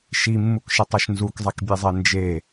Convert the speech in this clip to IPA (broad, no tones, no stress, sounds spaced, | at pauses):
ʃ i mː u k ʃ ɪ tˤ a ʃ n z u k zˤ e k bʲ e zˤ e n d͡ʒ e